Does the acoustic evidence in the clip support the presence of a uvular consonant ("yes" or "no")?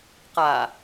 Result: yes